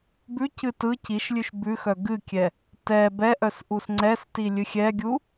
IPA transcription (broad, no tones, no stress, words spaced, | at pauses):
bʉcɨ tɯ ciʃlʲʉʃ bʉxœ ɡɨkʲɛ | tɛ bɛʔœs ʔusŋ͡ǀɛsti lʲɨxʲɛɡʲu